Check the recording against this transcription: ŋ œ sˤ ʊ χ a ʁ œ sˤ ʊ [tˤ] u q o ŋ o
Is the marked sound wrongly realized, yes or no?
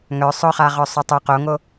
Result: no